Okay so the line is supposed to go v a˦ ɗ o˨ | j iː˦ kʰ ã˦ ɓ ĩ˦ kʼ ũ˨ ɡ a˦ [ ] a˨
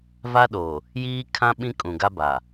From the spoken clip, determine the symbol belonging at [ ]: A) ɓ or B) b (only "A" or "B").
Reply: B